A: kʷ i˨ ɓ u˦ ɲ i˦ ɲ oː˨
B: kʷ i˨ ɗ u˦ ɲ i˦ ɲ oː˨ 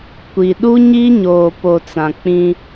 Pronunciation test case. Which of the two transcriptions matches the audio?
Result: B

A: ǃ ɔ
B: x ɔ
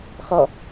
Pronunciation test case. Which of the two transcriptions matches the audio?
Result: B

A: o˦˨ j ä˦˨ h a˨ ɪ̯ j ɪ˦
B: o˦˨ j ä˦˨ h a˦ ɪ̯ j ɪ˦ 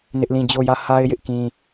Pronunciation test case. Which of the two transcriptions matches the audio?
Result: B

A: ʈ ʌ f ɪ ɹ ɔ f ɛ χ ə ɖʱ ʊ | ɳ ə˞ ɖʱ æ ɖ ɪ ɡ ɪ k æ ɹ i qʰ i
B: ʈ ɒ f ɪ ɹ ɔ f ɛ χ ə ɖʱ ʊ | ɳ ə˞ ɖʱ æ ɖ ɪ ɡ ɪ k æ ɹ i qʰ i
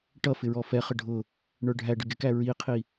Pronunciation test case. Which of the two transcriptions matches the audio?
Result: A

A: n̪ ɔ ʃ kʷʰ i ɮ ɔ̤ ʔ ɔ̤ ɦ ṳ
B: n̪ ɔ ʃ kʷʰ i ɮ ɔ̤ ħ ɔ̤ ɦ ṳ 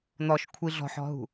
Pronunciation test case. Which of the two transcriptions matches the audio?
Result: B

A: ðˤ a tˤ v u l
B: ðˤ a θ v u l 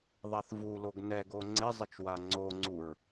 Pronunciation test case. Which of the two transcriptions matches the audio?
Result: B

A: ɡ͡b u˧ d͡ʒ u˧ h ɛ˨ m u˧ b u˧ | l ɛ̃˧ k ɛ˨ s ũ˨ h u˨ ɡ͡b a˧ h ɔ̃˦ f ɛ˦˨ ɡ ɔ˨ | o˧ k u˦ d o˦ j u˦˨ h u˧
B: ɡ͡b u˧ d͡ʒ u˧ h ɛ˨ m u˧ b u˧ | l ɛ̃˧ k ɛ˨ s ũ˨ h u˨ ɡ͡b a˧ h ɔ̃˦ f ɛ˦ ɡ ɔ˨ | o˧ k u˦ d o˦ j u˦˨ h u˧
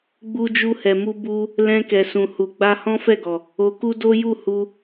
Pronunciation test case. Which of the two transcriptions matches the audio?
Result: A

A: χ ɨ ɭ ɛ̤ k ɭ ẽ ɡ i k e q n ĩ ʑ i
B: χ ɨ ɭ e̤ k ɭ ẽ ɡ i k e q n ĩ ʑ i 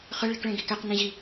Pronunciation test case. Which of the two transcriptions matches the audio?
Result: B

